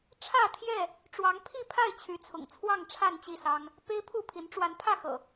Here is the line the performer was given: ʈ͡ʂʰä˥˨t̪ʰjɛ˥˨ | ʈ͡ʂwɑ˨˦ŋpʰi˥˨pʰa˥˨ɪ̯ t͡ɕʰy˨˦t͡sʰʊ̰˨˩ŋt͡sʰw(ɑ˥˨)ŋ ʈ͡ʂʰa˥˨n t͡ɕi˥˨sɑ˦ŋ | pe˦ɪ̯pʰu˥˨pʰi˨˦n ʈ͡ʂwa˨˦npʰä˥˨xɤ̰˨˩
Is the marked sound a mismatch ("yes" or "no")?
no